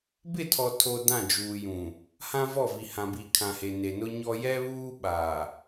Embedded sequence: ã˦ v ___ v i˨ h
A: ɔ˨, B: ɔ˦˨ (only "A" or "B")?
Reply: B